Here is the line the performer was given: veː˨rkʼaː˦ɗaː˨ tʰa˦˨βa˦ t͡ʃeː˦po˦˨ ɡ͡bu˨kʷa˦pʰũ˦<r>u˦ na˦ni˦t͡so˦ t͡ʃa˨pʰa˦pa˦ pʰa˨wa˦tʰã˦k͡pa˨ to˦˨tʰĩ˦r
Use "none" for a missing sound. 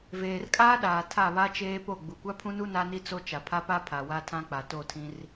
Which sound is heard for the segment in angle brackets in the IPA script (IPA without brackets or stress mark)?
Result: n